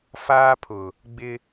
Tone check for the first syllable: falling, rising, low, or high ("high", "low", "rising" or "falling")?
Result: high